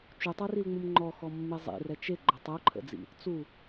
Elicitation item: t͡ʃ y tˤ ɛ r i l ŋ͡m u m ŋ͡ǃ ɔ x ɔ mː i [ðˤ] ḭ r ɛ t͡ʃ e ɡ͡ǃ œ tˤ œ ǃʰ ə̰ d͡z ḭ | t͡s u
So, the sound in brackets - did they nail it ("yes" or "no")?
no